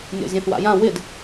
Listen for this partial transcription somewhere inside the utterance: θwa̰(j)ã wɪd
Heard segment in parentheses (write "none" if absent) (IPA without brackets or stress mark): j